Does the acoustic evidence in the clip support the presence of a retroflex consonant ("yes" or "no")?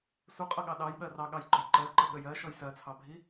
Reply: no